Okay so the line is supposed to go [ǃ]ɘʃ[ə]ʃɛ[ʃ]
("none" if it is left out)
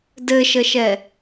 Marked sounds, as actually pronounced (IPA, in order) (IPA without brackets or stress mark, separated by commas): d, ə, none